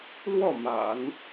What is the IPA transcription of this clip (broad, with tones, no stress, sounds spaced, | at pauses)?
l w ɔ˥˩ m a̰˨˩˦ n